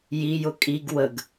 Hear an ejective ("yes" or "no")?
yes